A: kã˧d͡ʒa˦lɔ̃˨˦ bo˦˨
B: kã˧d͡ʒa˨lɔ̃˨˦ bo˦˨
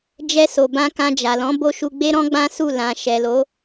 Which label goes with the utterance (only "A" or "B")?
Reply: B